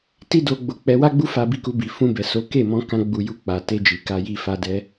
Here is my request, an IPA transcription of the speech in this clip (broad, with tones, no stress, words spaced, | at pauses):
ti˦do˧ɡ͡bo˧ k͡pɛ˧wa˦ɡ͡bu˦fa˧ bi˧ku˧ bi˨fũ˧bɛ˨so˨˦ ke˦˨mɔ̃˧ kã˧ɡ͡bu˨ ju˧k͡pa˨ te˧d͡ʒi˨ka˧ji˧ fa˧dɛ˧